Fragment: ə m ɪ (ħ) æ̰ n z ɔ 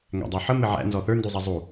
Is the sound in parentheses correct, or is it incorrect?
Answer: incorrect